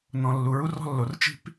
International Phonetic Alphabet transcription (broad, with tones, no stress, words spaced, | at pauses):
nɔ̃˨ lːu˨ɹu˦rɔ̤˦lːo˨r t͡ʃi̤˦p